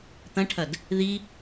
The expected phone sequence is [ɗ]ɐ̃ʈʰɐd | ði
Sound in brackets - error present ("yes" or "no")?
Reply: yes